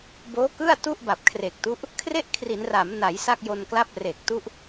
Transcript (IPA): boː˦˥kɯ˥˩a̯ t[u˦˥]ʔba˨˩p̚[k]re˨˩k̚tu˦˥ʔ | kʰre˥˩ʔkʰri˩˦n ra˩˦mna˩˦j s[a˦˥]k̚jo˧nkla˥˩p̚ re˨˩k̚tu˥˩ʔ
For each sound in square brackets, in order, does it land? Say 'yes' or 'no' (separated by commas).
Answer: no, no, no